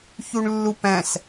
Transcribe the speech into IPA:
ç u ɳ lː u p æ̃ s

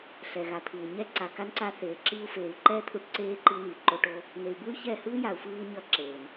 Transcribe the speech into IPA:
ɬ ɛ˨ ɣ a˨ t̪ʰ ɯː˨ ɲ ɛ˧ ǀ a˨ k a˧ n ǀ a˧ θ eː˨ ǁ i˧ u̯ f eː˨ y̯ ǃ ɛː˦ t̪ʰ u˧ ʈ ǀ eː˧ ǃ i˧ n i˨ ǃ o˧ ʈ o˦ | n e˨ y̯ b ɯ˦ y̯ ç ɛ˦˨ h ɯː˦ j a˨ u̯ f ɯː˧ ɲ ʌ˧ ǁ eː˨ n

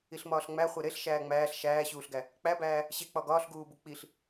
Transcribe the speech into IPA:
i ɬ m ɒː ɬ ŋ͡m æ χʷ e ɾ e ɬ ʃ æː ŋ͡m æː ɬ ʃ æː ɕ uː ɬ ɡ æ | k͡p æ b æː | ɕ e k͡p ɒ ɡ ɒː ɬ ɡ uː b u k͡p i ɬ

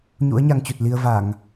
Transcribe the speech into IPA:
ɲ ṵ˧˥ ə̯ ɲ a˧ ŋ t͡ɕ u˨˩ t̚ l i˧ ə̯ v a˧˩˨ ŋ

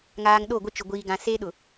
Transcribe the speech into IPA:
ŋ aː˨ ŋ ɗ o˦˨ ɡʷ ɪ˦ t͡ʃ ʊ˨ ɡʷ iː˨ ɡ ã˨ s eː˦ ɗ ʊ˨

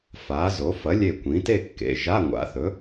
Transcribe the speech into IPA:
f a˩˥ z o˩˥ f ɐ˩˥ lʲ e˧˩ kʷ ĩ˩˥ t e˥˧ kː ḛ˩˧˩ ʒ a˧˥˧ ŋʷ a̰˩˥ θ ɵ˩˥

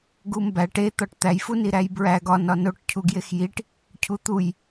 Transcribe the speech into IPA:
ɡ u m b æ ʈ e t̪ ɒ ʈ t̪ æ j f u n i ɾ æ j b ɹ æ ɡ ɒ n ɒ n o ʈ cʰ u ɡ j e x j i ʈ | cʰ u t̪ u j

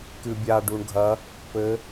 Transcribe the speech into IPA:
k ɨ bʲ a ɖ u ɳ ɡʱ ɐ | p ɘ

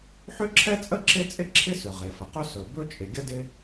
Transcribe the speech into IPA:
ħ ʏ˥ ǁʰ ɛ˥ t͡sʼ ə˥ ǁ e˥ t͡sʼ ɪ˥ ǁʰ ɪ˥ s ʏ˩ ʁ e˩ f ə˩ q ɵ˥ s ɵ˩ b ɵ˥ t͡ʃʼ ɪ˩ ɡʲ ə˥ d ɪ˥

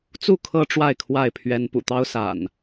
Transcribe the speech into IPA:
t͡s u˥˨ kʰ ɤ˦ ʈ͡ʂ w a˥˨ ɪ̯ kʰ w a˥˨ ɪ̯ pʰ ɥ ɛ˦ n p ṵ˨˩ t̪ ɑ˦ ʊ̯ s a̰˨˩ n

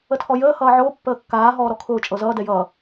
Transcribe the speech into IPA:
ə tʰ ɔ j əː h ʌː ʕ ʊː pː əː kː aː ɦ ɔː ɾ ɔ kʰ ʊː t͡ʃʼ ɤ z ʌː d ɛ j ʌː

